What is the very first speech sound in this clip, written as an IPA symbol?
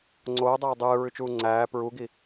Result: ŋ͡ǀ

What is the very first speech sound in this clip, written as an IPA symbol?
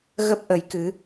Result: ɣ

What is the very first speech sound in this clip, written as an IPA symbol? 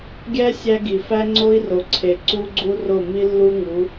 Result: ɡʲ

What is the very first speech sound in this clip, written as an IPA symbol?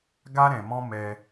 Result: ɡ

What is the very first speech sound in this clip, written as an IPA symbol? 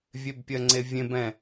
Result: vʲ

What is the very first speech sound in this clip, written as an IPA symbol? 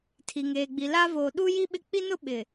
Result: tʰ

